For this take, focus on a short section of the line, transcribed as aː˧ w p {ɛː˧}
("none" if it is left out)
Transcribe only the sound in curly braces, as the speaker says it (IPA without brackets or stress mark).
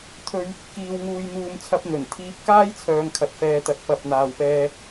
ɛː˥